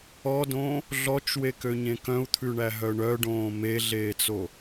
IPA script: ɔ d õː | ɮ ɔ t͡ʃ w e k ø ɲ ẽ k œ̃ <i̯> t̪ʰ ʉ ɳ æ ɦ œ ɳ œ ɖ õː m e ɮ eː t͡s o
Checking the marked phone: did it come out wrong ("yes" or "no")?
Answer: yes